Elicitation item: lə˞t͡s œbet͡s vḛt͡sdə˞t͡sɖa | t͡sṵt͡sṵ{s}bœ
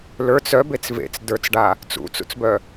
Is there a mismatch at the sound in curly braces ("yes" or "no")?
yes